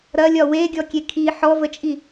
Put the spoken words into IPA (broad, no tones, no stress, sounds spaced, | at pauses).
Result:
ɾ ɐ lʲ ɒ w e ɡʲ ɔ kʲ e kʰ i ħ ɔ v ə t͡ʃʼ i